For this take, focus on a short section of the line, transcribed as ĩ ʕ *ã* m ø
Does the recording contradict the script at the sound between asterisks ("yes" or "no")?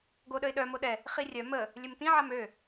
yes